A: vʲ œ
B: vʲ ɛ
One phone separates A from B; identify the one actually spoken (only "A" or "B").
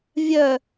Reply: A